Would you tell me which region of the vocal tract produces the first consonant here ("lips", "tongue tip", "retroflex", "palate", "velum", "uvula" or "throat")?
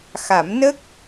velum